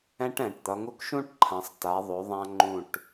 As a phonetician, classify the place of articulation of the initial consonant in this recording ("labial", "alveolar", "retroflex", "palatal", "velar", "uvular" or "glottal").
retroflex